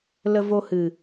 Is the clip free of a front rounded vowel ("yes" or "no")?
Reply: yes